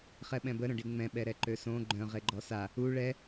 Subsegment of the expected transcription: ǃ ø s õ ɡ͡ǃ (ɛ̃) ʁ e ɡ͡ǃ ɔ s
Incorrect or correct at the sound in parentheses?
incorrect: œ̃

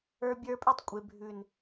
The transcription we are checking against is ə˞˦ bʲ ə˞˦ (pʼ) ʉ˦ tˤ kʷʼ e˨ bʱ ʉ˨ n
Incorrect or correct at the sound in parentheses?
correct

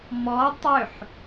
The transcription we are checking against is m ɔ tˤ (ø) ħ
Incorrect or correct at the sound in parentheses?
correct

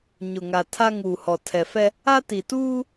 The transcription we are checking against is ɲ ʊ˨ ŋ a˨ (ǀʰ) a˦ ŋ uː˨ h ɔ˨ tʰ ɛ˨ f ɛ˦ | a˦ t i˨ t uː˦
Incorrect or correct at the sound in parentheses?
incorrect: tʰ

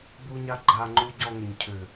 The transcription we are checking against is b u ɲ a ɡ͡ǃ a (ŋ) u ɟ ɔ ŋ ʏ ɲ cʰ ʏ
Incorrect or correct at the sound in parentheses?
incorrect: ŋ͡ǃ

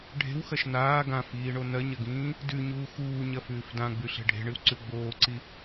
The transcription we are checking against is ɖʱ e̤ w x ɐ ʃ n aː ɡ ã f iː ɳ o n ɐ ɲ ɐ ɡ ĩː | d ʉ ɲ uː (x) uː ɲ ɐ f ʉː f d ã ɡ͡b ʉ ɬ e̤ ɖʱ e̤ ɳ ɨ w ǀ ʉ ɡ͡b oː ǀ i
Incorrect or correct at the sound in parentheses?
correct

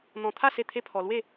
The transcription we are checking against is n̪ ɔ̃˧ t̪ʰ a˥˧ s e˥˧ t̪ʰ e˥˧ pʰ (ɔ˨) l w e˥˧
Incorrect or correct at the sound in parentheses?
incorrect: ɔ˧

